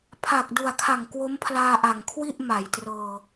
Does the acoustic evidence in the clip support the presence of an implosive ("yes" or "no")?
no